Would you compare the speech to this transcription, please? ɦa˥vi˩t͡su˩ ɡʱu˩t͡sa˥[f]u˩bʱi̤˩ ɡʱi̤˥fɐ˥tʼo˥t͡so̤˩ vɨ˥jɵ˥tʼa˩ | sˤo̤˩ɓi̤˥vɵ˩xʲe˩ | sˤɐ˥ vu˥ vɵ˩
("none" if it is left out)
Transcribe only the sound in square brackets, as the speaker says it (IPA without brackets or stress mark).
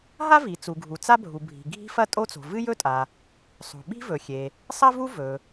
bʱ